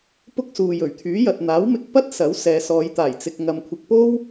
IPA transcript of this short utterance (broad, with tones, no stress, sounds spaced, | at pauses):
p ʊ˥ k̚ s uː˨ j ɵ˨˩ ɥ t̪ʰ yː˨˥ j ɐ˨ t̚ n̪ aː˨˥ w m ɪ˧ k̚ p ɐ˥ t̚ s ɐ˨˥ w s ɛː˨ s ɔː˨˧ j t̪ aː˨˩ j t͡s ɪ˨ k̚ ŋ ɐ˨ m kʷʰ ɪ˨ k̚ p o˥ w